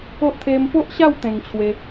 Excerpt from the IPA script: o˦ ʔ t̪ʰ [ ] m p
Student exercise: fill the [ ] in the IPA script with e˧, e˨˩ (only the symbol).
e˧